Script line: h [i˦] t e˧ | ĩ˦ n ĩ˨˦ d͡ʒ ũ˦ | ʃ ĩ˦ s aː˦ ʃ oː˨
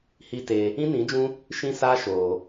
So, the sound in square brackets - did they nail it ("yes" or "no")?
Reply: yes